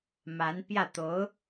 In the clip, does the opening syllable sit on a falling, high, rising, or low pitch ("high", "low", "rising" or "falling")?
rising